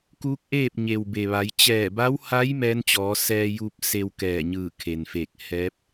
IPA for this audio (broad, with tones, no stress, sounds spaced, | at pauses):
k uː˧˥ k̚ ʔ eː˥˨ p̚ ɲ e˩ w b e˩ ʋ a˩˧ j t͡ɕ ɛː˧˩ b a˧˥ w h a˧˥ j m ɛː˧˥ n t͡ɕ ɔː˩˧ s ɛː˧ j uː˧ p̚ s e˧ w k ɛː˧˩ ɲ ɯː˧˩ kʰ e˩ n f eː˧˩ k̚ h ɛː˧˥ p̚